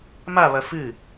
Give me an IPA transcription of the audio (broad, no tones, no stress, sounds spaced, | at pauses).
m a β ɐ f ɨ